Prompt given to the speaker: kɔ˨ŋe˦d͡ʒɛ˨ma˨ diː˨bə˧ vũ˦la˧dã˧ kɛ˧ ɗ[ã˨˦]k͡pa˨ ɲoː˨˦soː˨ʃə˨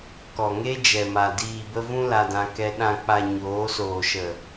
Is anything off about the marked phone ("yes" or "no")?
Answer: yes